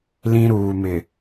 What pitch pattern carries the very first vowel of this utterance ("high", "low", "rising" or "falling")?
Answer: high